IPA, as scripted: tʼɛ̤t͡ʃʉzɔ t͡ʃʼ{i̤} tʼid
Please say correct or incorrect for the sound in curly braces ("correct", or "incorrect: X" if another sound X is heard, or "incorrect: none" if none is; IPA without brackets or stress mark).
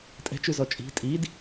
correct